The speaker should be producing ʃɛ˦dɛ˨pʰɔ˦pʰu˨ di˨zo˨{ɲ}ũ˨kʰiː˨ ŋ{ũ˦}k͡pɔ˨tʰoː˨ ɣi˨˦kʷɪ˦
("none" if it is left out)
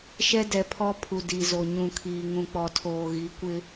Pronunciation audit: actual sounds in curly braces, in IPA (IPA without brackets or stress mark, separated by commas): ɲ, ũ˨